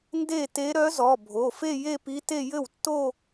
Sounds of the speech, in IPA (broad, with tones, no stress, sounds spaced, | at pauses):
n d e˥˩ t e˧˥ ɾ œ˧˥ z ɔ˩˧˩ bʱ o˩˧˩ f e˥˧ j e˥˧ p i˧˥ t e˥˧ j ɘ˥˩ w tː o˥˧